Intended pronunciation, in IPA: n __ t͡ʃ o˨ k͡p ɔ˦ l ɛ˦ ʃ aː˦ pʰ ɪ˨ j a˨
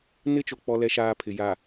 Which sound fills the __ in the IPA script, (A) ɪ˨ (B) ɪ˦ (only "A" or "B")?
B